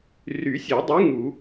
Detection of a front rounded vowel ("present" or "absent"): present